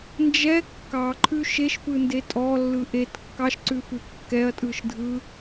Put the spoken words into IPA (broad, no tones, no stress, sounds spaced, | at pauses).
n d͡ʒ ɛ kː ɑ ǃʰ ʉ ʃ e ʃ p ɯ n d e tʼ ɔ lː ɯ ʔ e t kː ɑ ʃ ǀ ʉ f ʉ kː ɛ ɐ̯ tʼ ɯ ʃ dʱ ɯ